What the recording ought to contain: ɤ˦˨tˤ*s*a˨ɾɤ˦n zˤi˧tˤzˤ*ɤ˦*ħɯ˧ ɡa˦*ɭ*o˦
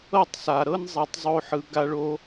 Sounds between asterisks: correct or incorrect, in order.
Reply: correct, incorrect, correct

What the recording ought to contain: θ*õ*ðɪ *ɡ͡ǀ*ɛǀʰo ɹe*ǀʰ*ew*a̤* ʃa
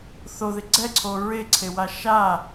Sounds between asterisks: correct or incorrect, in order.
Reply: incorrect, correct, correct, incorrect

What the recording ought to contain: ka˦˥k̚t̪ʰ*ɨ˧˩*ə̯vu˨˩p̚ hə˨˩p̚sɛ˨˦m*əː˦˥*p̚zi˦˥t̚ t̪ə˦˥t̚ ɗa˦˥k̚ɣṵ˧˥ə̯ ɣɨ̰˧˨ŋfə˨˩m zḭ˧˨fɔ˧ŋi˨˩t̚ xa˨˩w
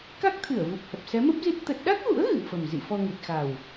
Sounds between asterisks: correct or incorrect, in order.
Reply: correct, incorrect

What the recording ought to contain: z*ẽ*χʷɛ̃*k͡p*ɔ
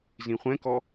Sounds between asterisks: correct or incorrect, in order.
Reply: incorrect, incorrect

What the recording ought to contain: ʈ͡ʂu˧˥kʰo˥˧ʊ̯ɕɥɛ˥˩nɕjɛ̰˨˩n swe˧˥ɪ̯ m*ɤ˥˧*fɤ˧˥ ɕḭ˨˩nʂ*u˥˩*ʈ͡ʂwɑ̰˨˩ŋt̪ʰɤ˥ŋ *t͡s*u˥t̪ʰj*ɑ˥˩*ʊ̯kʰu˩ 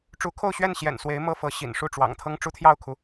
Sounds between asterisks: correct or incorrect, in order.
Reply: incorrect, correct, incorrect, correct

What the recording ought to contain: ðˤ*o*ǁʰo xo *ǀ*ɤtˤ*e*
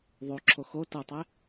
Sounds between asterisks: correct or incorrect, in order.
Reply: correct, incorrect, correct

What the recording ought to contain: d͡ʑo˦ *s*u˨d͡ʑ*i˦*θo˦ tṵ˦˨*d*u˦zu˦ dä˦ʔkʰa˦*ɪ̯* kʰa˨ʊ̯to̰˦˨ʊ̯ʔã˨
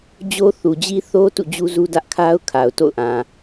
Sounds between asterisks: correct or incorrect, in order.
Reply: incorrect, correct, incorrect, incorrect

